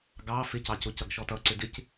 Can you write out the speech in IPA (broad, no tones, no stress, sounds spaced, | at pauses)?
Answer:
ɡ ɑ f ɪ c ɑ c ʊ c ʌ ɡ ʃ ɔ t ʌ ǀ ɪ d ɪ c